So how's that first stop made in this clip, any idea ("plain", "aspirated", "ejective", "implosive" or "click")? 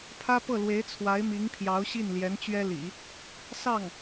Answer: aspirated